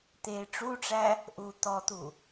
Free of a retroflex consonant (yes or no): no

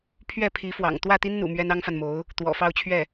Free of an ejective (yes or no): yes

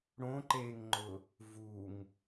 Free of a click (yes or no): no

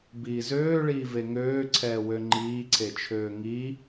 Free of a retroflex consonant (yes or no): no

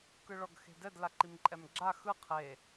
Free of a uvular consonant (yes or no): no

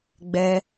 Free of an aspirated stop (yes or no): yes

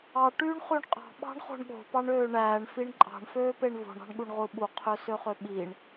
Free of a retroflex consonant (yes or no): no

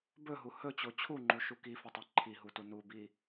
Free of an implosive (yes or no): yes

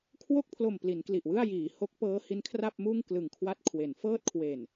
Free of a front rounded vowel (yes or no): yes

